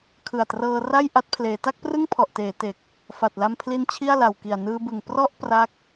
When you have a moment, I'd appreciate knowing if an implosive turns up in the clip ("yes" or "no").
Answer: no